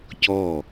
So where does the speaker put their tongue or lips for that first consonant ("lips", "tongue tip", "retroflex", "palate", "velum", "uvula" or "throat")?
palate